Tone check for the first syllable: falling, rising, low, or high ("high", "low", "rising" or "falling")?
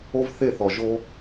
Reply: high